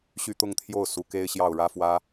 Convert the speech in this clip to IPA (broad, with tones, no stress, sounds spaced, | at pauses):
ɕ y˥˧ t̪ ʊ˥˧ ŋ t̪ʰ j o˥˩ ʊ̯ s u˧˥ k e˥ ɪ̯ ɕ j ɑ˥˩ ʊ̯ ɻ ä˥ f w ä˥